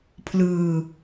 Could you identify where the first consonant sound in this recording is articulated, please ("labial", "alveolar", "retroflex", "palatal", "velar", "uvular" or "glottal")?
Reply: labial